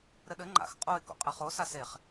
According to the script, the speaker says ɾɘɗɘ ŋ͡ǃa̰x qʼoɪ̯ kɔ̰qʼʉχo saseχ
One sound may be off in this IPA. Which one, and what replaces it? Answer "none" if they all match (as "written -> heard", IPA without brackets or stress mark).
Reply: ʉ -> ɘ